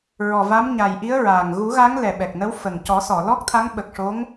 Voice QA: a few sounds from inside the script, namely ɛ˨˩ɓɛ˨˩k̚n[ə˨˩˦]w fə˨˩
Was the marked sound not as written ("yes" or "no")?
yes